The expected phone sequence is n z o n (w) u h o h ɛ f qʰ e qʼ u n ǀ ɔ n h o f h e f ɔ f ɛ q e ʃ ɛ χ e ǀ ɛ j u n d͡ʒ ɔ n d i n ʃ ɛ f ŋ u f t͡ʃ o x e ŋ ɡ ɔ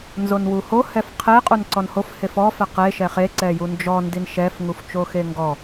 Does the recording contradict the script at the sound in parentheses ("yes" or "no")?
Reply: no